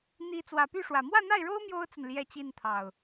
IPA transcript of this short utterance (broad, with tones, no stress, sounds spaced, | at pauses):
n̪ i˨˦ t͡s w ä˨˩ p y˥˨ ʂ w ä˨˩ m w ä˥˨ n̪ a˥˨ ɪ̯ ɻ o˦ ʊ̯ m j o˦ ʊ̯ t͡s ə˨ n l j ɛ˥˨ t͡ɕ i˥˨ n t̪ʰ ɑ˨˩ ʊ̯